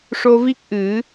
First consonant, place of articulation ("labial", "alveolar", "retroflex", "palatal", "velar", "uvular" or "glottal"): retroflex